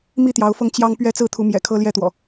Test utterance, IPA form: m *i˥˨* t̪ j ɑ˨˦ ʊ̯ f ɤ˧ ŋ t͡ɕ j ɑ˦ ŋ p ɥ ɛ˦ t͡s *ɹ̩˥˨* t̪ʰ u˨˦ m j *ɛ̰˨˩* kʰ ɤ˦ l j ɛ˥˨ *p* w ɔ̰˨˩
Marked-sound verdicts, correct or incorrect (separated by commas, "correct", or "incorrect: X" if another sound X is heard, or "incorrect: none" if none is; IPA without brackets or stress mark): correct, correct, correct, incorrect: t̪